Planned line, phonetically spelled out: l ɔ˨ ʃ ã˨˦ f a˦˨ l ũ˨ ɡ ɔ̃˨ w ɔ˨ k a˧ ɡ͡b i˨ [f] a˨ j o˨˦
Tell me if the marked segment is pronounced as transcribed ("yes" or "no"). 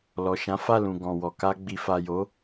yes